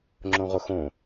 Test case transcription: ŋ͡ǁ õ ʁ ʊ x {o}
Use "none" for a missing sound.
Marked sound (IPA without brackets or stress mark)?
õ